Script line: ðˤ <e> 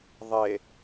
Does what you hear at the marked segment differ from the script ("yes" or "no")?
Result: no